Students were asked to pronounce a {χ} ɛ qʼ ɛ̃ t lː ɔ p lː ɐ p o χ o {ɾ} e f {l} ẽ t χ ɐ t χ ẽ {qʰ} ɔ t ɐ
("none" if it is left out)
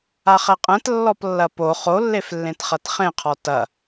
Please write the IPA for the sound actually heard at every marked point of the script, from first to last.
χ, lː, lː, qʰ

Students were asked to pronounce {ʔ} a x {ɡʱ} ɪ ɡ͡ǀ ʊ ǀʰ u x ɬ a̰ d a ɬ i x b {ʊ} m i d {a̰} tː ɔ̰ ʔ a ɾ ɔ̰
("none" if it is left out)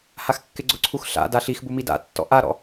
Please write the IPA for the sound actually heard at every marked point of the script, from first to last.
h, kː, u, a̰

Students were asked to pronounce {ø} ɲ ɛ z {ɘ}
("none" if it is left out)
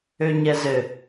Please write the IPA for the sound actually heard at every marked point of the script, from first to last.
ø, ɘ

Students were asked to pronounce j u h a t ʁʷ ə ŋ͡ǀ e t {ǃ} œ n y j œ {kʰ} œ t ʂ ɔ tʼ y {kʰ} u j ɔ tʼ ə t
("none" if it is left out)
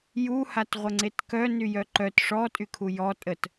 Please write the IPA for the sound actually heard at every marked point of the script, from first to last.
k, ǃ, kʰ

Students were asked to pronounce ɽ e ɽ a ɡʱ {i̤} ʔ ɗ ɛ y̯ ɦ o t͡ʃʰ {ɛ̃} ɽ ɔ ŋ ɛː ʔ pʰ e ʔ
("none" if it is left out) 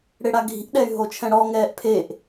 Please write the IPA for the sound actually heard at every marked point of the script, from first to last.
i̤, ɛ̃

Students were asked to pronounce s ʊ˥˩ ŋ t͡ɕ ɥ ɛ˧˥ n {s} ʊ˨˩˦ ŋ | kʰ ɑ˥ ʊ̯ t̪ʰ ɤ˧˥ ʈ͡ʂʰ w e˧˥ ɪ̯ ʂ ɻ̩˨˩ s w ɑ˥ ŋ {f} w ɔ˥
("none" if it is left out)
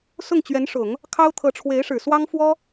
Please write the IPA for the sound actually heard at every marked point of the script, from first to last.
ʂ, f

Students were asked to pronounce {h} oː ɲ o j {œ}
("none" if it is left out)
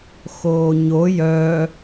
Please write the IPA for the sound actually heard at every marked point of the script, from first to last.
x, œ

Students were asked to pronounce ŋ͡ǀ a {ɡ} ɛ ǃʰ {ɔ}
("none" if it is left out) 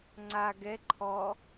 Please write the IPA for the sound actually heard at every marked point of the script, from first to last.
ɡ, ɔ

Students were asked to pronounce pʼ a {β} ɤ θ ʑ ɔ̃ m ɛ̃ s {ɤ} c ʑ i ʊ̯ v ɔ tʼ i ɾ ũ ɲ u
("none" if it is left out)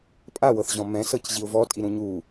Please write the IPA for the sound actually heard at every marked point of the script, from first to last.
w, ɤ

